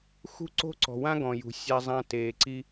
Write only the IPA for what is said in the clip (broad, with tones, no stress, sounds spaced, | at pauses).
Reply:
x ṳ˦ ǀ o̤˦ ǀ ɔ̤˨ w ã˦ ɡ ɔ̃˨ j ṳ˨ sʲ a˦ zˤ ã˦ t eː˨ ǀ i˦